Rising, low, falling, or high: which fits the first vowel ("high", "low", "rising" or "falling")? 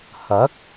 rising